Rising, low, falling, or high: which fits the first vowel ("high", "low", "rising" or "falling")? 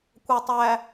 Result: low